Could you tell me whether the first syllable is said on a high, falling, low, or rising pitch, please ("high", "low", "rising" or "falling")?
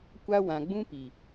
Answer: high